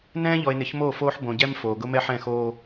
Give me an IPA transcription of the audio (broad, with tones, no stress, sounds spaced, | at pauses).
n ɛ̃ː˦ ʎ ɔ˨ e̯ n ɪ˨˦ ç m o˦˨ f oː˦ ħ b õ˨ ɟ ɛ˦ m f oː˨ ɡ ʊ˦ m ɛ˦ ħ ɛ̃˦˨ x oː˦